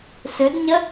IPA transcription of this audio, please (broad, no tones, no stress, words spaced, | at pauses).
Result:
sɨdɲə